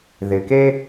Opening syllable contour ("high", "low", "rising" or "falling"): low